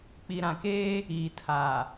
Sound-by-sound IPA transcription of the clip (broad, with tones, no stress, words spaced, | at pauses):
k͡pi˨ɾã˨keː˦ | iː˨tʰaː˨